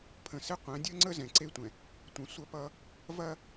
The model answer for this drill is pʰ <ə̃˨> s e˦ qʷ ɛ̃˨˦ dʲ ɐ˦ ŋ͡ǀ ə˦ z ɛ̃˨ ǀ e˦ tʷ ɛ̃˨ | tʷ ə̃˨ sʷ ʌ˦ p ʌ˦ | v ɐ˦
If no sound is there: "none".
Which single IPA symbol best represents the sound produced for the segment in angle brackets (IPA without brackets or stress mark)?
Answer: ə̃˨